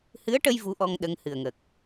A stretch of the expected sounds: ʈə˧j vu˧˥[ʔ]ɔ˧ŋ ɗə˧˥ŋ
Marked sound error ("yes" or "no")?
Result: no